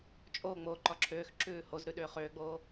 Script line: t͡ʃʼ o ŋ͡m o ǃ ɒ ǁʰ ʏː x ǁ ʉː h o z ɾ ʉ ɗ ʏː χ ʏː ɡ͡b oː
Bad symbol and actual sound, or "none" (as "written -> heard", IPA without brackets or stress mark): none